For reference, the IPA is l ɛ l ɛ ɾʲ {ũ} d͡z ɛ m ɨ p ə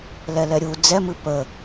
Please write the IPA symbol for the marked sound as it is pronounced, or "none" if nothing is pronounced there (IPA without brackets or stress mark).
u